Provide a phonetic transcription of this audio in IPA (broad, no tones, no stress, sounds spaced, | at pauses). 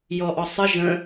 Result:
j ɔ ʔ ɔ sˤ ɨ ʒ ə̃